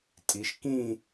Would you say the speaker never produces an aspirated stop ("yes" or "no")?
yes